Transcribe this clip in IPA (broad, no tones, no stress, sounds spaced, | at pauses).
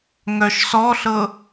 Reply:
ŋ œ ʃ s ɔ ɬ ɤ